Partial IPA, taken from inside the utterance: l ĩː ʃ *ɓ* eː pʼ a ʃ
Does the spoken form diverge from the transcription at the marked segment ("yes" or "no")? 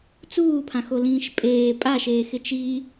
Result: yes